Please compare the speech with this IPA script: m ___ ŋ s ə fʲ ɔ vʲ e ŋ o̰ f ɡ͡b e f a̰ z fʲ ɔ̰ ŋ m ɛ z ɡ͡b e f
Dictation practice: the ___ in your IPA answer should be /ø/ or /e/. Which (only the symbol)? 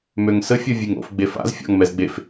ø